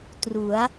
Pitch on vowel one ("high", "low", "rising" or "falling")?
rising